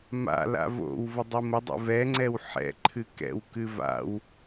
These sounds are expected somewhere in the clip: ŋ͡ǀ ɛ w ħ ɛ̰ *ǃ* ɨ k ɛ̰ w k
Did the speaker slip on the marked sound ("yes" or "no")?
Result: yes